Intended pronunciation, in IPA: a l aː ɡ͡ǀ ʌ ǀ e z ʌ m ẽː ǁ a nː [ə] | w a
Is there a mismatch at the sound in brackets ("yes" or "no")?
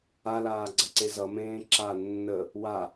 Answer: no